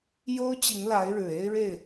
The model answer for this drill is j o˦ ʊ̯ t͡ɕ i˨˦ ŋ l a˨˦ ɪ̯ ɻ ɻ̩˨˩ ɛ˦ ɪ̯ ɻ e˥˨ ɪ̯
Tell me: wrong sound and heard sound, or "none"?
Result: ɛ˦ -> e˦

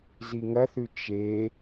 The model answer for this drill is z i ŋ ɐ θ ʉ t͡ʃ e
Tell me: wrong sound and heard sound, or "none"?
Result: none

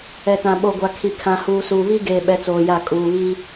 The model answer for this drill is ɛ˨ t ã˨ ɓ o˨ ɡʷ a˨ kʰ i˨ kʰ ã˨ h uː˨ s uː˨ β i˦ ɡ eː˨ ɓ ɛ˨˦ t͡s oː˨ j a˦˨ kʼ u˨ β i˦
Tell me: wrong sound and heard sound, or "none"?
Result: u˨ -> uː˨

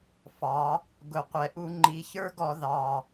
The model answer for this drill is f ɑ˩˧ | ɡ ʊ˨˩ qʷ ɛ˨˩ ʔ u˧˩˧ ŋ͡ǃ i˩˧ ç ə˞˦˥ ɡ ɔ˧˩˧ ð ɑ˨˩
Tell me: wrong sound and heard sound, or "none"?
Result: none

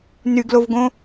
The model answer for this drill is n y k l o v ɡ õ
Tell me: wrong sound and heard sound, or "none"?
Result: k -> ɡ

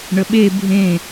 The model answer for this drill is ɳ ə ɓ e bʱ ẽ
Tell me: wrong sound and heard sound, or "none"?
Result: none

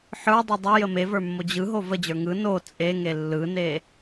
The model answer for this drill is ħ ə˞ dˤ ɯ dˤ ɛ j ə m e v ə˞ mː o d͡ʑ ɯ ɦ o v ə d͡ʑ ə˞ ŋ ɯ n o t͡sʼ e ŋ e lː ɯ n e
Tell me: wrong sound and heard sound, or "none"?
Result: none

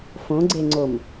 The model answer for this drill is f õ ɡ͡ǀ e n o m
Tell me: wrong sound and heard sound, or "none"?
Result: n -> ŋ͡ǀ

